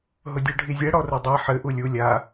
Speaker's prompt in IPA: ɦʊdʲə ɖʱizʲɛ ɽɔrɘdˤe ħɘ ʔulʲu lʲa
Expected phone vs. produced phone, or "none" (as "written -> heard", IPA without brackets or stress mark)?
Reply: ə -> ʊ